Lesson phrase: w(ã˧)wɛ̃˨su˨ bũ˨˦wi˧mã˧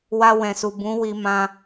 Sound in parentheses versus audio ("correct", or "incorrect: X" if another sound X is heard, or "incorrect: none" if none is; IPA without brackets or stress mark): incorrect: a˧